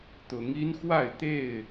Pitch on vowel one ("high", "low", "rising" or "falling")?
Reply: rising